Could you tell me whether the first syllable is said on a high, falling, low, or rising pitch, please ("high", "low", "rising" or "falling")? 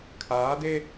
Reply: rising